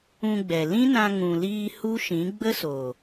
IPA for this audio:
ũ˧ɡ͡bɛ˨ lĩ˦nã˧ ŋũ˨liː˧ hu˦ʃĩ˨˦ ɡ͡bə˦so˨

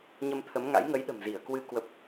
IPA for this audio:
ɲə˧mt̪ʰə˨˦mŋa̰˧˥j ŋə˨˦jɗə̤˨˩m zi˧˩ə̯kwɨ˧ kwə˦˥p̚

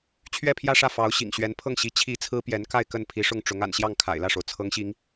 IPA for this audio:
t͡ɕʰɥɛ˥˧pʰjä˥˧ʂä˥˩ fɑ˧˥ʊ̯ ɕḭ˨˩ŋɕɥɛ˧˥npʰɤ˥˩ŋ ɕi˧˥ t͡ɕʰi˧˥ t͡sʰɹ̩˥pjɛ˧˥nka˥˧ɪ̯ kə˥˩n pʰi˧˥ʂʊ˥˩ŋ ʈ͡ʂʊ˧˥ŋ a̰˨˩n ɕjɑ˥˩ŋkʰa̰˨˩ɪ̯lä˥˩ʂo˩ʊ̯ t͡sʰɤ˧˥ŋɕi˧˥ŋ

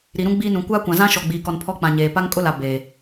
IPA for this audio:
ɾi˨ɾũ˦ ɡ͡biː˦nũ˨ kʷaː˦kʷã˨zã˦ ʃɔ˨ɡ͡biː˨kɔ˨n pʰɔ˦k͡pã˨ɲeː˨ pa˦ŋkʼʊ˦la˨ beː˨

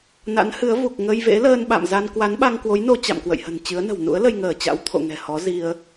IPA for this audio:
na̰˧˥nhɨ˨˦ə̯ vu˨˩k̚ ŋə˧jvḛ˧˥ ləː˧nɓa̰˧˨mza˧n kwa˨˦nɓa˧ŋkwo˨˦jno˧ t͡ɕa̰˧˨mkwə̰˧˨jhə̤˨˩n t͡ɕɨ˨˦ə̯nə̤˨˩w nṵ˧˥ə̯ lə˧jŋəː˧˩t͡ɕa̰˧˥w t̪ʰo̰˧˨ŋɛ̤˨˩ hɔ˨˦zi˧ə̯

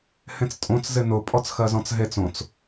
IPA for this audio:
hẽt͡stʼõt͡s zɪnʊ pʼɔt͡sxɜzɔ̃t͡sɦet͡s õt͡s

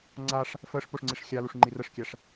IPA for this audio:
ŋ͡ǀaʂ | fəʂ poʂŋ͡ǀiʂxʲaluʂ ŋ͡ǃirəʂkʲæʂ

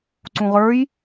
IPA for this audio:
ǀũʁə˞j

